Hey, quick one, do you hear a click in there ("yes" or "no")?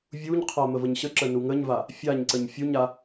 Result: yes